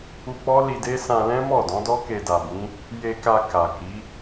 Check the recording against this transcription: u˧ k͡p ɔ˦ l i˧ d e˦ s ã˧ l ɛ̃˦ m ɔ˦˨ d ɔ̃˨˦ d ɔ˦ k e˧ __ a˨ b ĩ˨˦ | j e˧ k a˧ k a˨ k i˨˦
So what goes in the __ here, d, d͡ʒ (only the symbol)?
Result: d